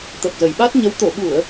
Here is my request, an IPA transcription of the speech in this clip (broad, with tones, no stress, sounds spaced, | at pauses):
t̪ ə˨˩ p̚ z ə˨˩ j ɓ a˦˥ t̚ ɲ ə˨˦ w t̪ o˧˩ ɓ u˧˩˨ ə̯